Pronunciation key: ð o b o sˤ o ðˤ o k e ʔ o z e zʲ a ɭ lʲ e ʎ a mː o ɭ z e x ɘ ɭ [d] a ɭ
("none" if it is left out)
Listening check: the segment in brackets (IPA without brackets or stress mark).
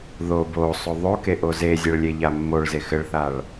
θ